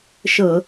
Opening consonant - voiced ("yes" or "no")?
no